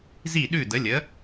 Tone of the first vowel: falling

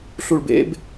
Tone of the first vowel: low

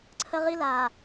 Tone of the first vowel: high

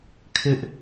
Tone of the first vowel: high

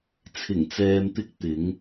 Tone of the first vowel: low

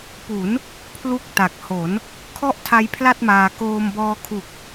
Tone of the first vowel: rising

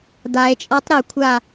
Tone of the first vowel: low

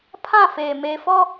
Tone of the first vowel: falling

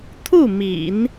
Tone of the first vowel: falling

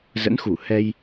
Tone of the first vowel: rising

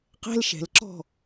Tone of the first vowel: high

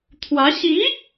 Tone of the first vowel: rising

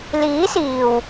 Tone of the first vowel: rising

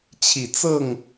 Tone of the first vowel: low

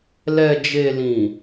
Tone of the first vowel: low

